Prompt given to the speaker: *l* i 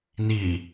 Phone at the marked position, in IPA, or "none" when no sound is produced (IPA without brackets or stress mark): n